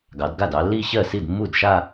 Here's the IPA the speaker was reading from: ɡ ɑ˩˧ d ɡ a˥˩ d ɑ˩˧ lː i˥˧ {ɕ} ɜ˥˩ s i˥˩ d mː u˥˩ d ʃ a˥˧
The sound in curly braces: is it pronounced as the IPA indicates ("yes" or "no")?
yes